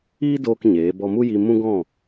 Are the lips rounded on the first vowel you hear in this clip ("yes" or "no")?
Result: no